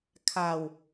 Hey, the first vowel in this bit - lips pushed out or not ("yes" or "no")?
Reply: no